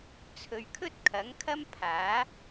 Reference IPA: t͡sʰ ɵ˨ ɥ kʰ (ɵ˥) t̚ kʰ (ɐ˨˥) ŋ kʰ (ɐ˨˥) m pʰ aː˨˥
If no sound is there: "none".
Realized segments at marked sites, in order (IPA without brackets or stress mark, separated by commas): ɵ˥, ɐ˨˥, ɐ˥